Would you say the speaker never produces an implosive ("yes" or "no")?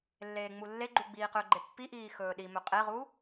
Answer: no